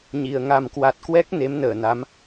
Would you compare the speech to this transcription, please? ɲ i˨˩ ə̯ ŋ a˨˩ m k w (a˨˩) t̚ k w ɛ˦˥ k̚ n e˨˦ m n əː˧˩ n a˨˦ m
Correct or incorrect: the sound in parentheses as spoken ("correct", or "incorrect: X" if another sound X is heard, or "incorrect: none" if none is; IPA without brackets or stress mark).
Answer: correct